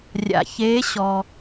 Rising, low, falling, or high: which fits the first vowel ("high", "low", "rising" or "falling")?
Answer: low